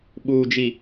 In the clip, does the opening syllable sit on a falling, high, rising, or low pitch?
low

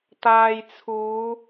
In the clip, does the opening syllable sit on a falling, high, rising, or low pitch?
low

